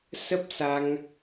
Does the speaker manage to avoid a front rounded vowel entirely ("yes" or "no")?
yes